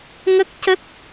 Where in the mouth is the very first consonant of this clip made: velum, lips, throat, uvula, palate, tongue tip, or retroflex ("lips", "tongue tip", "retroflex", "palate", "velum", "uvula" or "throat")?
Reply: velum